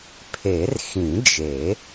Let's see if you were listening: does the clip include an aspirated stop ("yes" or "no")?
yes